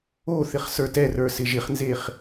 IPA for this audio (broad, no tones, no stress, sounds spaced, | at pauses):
o θ ɪ χ s ə˞ t ɛ r ə˞ s ɪ ʒ ɪ χ n z e χ